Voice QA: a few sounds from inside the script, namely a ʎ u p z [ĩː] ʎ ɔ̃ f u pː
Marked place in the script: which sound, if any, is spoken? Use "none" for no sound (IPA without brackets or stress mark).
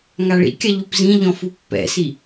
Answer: ĩ